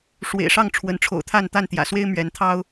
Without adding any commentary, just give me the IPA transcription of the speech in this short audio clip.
ʂwḛ˨˩ɪ̯ʂɑ˥˨ŋ ʈ͡ʂʰwə˨˦nʈ͡ʂʰo̰˨˩ʊ̯t̪ʰa˥˨n t̪a˥˨nt̪jä̰˨˩swe˦ɪ̯ mɥɛ˨˦nt̪ʰɑ˦ʊ̯

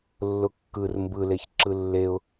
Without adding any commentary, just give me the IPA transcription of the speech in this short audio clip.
lːʊkːɯr mbɯleç ǁɯlːeʊ̯

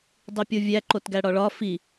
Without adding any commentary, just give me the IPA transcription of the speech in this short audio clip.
dˤipʲovʲæ ǃotɡæɽɒɭɒ fi

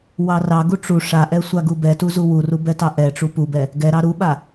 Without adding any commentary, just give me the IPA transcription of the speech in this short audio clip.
wɑrɑɡu ʈ͡ʂu ʂaʔɛ sʷaɡubɛtu zuwuru bɛtɑʔɛʈ͡ʂu pubɛ | ɡɛɾɑ ɾuɓa

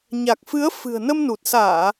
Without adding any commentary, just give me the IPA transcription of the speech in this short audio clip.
ɲa˨˩k̚fɨ˨˦ə̯ fɨ̤˨˩ə̯nə˧mnu˨˩t̚saː˧˩˨

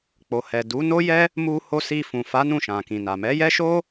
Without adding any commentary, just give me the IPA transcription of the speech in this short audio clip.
k͡po˨hɛ˨ du˨˦no˦jɛ˦ | mu˧ho˧ si˧fũ˨fa˨˦ nũ˦˨ʃã˨kĩ˨na˨ mɛ˨˦jɛ˦ʃo˦

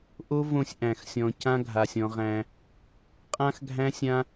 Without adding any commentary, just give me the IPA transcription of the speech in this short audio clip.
ʔo˦võ˧sʲ ʔæ̃˨xsʲɔ̃˨cã˦ ɡʱa˨sʲɔ̃˧ʁæ̃˧ | qʼã˦xɡʱæ̃˦sʲã˦

